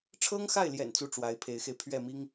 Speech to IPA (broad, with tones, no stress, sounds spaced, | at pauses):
ʈ͡ʂʰ ɤ˥ ŋ x a˥˩ ɪ̯ l j ɛ̰˨˩ n t͡s u˥˩ ʈ͡ʂ w a˧˥ ɪ̯ pʰ e˧˥ ɪ̯ x e˧ ɪ̯ pʰ ɥ ɛ˥˩ m i˥ ŋ